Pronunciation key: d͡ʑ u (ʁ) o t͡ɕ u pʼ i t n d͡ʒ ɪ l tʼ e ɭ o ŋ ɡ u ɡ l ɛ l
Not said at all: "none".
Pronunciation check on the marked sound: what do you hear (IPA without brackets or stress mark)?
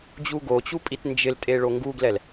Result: ɡ